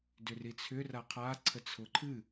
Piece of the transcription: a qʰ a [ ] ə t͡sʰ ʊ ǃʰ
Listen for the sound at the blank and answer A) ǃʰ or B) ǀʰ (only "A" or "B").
B